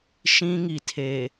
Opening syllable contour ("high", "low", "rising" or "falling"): high